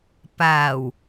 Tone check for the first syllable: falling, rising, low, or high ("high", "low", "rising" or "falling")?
low